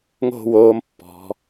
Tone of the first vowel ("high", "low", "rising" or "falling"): falling